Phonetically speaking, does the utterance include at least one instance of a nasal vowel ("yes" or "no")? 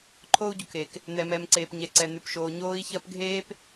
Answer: no